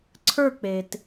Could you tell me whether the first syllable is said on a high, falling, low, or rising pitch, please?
falling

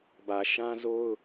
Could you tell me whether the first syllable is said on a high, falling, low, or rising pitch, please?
low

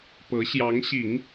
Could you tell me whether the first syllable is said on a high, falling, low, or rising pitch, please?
rising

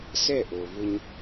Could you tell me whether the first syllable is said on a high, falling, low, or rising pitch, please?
falling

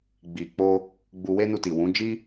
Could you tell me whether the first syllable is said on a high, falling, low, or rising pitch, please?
low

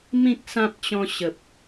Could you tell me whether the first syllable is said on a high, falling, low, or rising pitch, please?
high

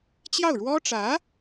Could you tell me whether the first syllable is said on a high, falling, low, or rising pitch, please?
falling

